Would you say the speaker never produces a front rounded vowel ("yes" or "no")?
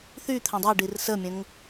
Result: no